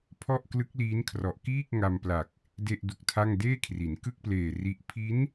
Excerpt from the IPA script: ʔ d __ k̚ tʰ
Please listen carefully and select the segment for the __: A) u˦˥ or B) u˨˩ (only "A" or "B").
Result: A